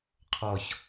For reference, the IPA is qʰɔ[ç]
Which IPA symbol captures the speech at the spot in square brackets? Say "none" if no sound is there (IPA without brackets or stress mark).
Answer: ç